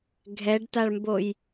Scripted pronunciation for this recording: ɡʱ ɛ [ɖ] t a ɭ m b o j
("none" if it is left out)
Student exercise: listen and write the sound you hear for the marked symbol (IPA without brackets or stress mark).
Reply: ɖ